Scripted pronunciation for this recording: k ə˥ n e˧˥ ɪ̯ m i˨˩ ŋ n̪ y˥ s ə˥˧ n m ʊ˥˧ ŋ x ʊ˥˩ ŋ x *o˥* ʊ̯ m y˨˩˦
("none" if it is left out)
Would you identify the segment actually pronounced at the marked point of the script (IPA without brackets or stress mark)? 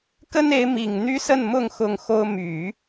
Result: o˥